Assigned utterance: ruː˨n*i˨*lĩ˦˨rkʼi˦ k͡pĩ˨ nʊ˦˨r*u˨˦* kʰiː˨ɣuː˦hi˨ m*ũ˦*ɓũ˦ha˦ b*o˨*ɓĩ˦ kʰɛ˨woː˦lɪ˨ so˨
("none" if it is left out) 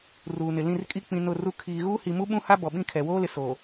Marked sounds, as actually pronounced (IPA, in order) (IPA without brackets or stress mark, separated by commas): ɪ˨, u˦, u˦, ɔ˨